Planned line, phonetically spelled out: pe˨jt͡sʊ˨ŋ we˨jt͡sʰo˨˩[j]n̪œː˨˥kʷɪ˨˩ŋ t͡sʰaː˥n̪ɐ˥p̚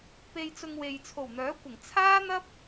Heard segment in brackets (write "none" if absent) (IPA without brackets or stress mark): w